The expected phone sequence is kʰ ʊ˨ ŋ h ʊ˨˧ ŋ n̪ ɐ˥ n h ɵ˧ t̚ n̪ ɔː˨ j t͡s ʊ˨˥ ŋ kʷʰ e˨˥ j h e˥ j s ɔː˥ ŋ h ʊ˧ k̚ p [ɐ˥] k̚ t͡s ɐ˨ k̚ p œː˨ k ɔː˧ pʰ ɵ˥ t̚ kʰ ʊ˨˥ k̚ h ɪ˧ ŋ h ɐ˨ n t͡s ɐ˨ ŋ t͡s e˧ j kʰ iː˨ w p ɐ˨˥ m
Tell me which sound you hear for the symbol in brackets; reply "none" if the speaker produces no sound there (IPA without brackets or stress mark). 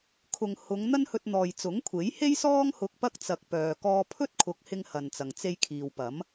ɐ˥